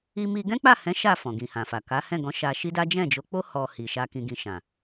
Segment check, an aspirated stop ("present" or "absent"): absent